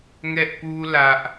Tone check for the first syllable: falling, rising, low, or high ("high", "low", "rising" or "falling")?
high